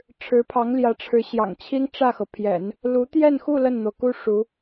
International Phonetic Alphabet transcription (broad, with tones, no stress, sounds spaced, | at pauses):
ʈ͡ʂʰ ɻ̩˧˥ pʰ ɑ˧˥ ŋ l j ä˧˥ ʈ͡ʂʰ ɻ̩˧˥ ɕ j ɑ̰˨˩ ŋ t͡ɕʰ i˥ ŋ ʈ͡ʂ ä˥˩ x ɤ˩ pʰ j ɛ̰˨˩˦ n | l u˧˥ t̪ j ɛ˥˧ n x u˥˧ l ə˥˩ n n̪ o˩ ʊ̯ k u˥ ʂ u˧˥